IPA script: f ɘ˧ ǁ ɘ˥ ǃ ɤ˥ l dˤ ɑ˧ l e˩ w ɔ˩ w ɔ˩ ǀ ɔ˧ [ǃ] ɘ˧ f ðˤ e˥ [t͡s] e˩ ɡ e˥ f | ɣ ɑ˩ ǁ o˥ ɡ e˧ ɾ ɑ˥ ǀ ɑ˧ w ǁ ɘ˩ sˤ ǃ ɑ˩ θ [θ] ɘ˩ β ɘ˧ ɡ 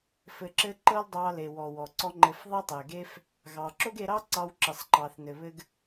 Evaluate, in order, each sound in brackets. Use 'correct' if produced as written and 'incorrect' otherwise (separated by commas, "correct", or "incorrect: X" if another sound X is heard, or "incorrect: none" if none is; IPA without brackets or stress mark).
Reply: incorrect: ŋ͡ǃ, incorrect: tˤ, incorrect: n